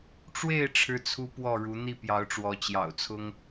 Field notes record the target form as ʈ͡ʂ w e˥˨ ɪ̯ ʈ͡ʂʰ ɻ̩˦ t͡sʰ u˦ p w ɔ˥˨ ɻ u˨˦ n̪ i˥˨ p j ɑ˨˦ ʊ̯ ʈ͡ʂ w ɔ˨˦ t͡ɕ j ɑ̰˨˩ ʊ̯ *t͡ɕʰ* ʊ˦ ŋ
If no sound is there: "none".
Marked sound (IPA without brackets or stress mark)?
t͡sʰ